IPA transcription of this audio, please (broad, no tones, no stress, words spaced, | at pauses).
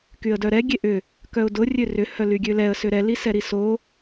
kyə̯dœɾɛ ɡʲeʔʏ | kœʊ̯dʊ rʲørʏ hœlyɡʲølɛə̯ sʏɾɛ lisɛɾiso